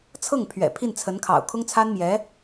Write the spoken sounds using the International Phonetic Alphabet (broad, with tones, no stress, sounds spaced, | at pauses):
t͡sʰ ɤ˥˩ ŋ pʰ ɥ ɛ̰˨˩ pʰ i˥˩ n t͡sʰ ə˧˥ n kʰ ɑ̰˨˩ ʊ̯ kʰ ʊ˥ ŋ t͡sʰ a˥ n m j ɛ˧˥